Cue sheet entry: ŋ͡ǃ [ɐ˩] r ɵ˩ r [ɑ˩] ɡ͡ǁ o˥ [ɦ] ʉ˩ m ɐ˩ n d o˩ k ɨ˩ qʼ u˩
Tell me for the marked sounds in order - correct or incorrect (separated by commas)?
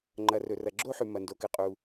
correct, incorrect, incorrect